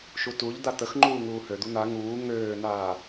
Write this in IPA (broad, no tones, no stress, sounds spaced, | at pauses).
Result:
ʃ u t u ʎ d̪ a t̪ ə x ŋ͡ǃ uː ŋ uː h ø d̪ u n̪ a ŋ uː ŋ øː n̪ aː